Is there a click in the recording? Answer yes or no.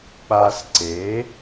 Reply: yes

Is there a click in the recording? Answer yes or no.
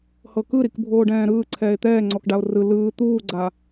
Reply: yes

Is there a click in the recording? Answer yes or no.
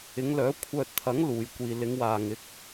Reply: no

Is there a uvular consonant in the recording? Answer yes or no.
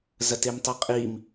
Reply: yes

